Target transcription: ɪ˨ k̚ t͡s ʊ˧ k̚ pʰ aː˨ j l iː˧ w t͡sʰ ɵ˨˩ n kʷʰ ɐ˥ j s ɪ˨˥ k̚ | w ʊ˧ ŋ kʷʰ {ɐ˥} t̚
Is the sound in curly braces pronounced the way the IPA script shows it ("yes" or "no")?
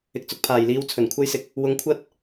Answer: yes